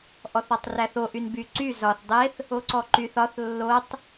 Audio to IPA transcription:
ʔ ɔ θ ɒ tˤ r æ θ o ʔ y n b y ǀ y z ɒ θ dˤ e θ | o ǀ ɔ ǃ y θ ɒ θ lː o tˤ

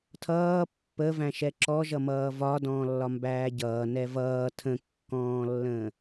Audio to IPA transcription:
tʰ ʌː pː ə v æ̃ ʃ ɛ ǁ ɔ ʒ ʌ m ʌː v ɒ d ɔ̃ː lː ɒ m b æː ɟ ʌː n ɛ v ʌː tʰ ə̃ kː ɔ̃ː lː ə̃

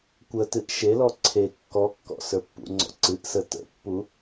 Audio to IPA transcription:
kʷ ə t ɨ ʔ ʃ e l ɔ ǀʰ e kː ɔ kː ɔ̰ s ə˞ pː ṵ ŋ͡ǀ ɔ̰ ǀ ɨ ʔ s ə t ə̰ pː u

